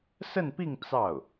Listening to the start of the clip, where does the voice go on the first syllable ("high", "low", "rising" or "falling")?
falling